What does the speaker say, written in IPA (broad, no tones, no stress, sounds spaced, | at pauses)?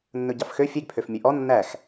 nː ɵ ɟ ɑ f x ø fʲ e ɡ pʰ ø f mʲ ʉ ʔ ɔ nː æ x